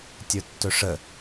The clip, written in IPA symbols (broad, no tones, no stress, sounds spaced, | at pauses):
tʲ ə˞ tː ɵ ʂ ə